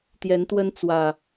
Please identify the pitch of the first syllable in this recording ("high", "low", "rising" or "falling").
rising